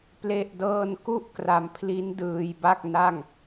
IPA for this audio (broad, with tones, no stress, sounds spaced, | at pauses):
p l e˥˩ ʔ d ɤː˥˩ n k u˥˩ ʔ k r a˧ m pʰ l i˦˥ n d ɯː˧ j b a˥˩ k̚ n a˥˩ ŋ